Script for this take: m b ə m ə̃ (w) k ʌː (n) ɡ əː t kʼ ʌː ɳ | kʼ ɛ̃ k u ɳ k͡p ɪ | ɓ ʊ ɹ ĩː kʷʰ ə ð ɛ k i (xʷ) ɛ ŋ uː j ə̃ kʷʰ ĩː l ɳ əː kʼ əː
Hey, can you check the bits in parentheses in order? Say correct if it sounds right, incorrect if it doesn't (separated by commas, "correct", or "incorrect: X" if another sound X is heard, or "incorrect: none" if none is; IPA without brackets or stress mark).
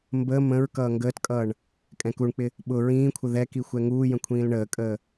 incorrect: ɹ, incorrect: ŋ, correct